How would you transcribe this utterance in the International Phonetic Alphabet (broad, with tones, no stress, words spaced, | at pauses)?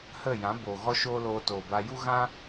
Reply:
hə˦˨jã˨˦boː˨ ɣɔ˦ʃoː˦loː˧ toː˨ba˧ ju˦ɣã˦